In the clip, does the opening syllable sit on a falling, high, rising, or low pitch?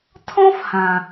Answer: high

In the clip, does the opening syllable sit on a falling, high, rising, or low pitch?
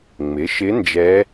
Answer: rising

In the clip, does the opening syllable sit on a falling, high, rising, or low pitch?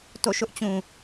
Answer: falling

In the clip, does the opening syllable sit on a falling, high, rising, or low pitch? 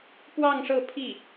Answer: falling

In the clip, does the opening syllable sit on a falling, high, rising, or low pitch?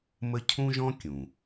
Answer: high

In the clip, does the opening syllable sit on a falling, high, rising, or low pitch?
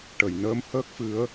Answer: low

